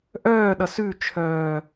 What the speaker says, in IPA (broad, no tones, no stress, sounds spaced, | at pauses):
ʔ œː ɗ ʌ s ʉ t͡ʃʰ œː